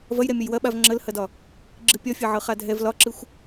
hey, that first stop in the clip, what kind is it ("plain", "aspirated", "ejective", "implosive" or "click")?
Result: implosive